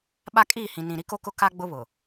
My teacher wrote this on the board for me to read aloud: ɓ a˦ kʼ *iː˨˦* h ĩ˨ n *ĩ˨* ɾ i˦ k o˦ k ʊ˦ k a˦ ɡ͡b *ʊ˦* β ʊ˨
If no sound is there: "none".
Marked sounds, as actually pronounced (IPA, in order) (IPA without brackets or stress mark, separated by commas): iː˦˨, ĩ˨, ʊ˦